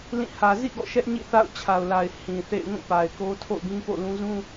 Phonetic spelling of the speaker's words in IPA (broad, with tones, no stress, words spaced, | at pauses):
lĩ˦˨ hä˨zḭ˦˨ ɡɔ̰˦˨ ʃɛ˦ʔɲḭ˦˨ θa̰˦˨ʊ̯t͡ɕʰa˨ʊ̯la˨ɪ̯ hĩ˨θḛ˦˨ɪ̯ŋũ˦˨ pa˨ɪ̯ko˦ tʰo̰˦˨ʊ̯ɡĩ˦po̰˦˨ lũ˦ zũ˦